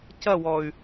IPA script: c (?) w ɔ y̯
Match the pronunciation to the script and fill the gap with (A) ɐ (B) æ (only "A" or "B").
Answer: A